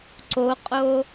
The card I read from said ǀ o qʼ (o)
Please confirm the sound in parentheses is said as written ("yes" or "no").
yes